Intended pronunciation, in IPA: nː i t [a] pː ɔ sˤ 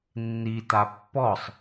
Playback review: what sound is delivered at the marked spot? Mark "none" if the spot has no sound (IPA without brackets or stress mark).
a